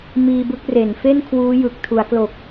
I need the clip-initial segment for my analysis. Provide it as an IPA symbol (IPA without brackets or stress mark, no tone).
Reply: m